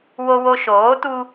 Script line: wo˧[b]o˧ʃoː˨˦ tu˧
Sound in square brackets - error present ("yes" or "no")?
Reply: yes